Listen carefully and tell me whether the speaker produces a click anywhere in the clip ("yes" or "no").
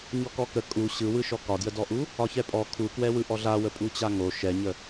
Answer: no